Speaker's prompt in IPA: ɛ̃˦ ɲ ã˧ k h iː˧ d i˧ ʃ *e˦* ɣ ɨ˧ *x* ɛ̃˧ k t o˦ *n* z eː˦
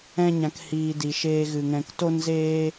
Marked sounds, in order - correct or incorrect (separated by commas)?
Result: incorrect, incorrect, correct